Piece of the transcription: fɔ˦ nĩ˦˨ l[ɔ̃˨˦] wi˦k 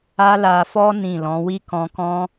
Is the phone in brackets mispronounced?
no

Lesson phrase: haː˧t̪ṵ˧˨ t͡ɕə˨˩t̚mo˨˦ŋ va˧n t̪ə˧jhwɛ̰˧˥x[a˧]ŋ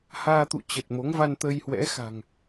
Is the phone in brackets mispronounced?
yes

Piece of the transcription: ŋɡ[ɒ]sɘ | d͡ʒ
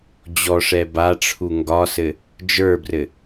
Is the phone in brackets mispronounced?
no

